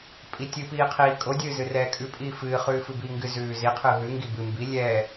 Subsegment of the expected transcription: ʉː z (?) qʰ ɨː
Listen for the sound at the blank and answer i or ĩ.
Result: i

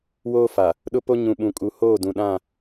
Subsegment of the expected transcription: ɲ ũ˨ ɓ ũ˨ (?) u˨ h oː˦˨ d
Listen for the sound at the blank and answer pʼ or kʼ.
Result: kʼ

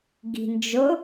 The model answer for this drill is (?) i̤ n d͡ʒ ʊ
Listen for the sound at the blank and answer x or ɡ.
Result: ɡ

